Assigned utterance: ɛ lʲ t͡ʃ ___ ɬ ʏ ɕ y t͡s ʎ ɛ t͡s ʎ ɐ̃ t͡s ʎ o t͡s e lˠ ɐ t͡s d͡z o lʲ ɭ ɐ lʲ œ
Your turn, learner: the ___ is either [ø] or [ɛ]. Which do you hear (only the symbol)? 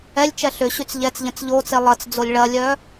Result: ɛ